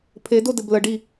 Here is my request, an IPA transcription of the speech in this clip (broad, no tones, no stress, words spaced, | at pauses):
pʰedo dɘbləɖi